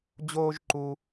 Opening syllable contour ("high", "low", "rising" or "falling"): high